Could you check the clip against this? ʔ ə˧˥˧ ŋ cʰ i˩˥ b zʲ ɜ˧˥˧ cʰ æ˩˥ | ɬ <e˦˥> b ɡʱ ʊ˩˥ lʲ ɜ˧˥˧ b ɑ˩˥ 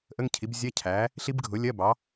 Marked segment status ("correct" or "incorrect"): incorrect